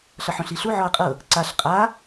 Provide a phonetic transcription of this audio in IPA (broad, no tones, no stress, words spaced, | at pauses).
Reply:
ɬɤħõɬiɬu ʕɔɐ̯qʼɤ | ǀaɬ qʼa